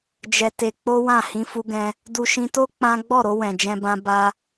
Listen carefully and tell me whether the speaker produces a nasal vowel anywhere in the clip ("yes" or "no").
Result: yes